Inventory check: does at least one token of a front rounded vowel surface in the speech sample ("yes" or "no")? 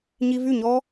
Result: yes